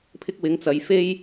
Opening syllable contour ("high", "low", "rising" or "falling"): high